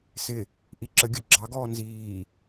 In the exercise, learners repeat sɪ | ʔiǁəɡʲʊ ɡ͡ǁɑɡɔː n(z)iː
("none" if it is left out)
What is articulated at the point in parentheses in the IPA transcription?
z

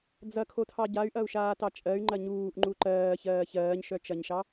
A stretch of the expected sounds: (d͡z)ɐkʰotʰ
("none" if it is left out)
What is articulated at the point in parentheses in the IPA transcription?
d͡z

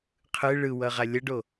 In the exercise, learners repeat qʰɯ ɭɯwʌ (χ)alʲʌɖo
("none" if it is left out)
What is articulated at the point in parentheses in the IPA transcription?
ʁ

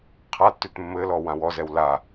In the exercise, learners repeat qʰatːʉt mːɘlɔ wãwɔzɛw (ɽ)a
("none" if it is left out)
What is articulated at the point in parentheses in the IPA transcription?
l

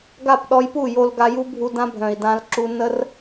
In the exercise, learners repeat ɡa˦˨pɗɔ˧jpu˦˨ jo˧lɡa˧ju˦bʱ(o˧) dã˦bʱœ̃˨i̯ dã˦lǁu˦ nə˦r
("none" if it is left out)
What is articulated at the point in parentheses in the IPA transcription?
u˧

